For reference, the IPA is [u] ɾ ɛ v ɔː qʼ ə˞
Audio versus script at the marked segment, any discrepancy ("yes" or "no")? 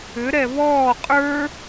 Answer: yes